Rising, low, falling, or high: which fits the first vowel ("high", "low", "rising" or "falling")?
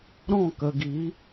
falling